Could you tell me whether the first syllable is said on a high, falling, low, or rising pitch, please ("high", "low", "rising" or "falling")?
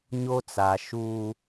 high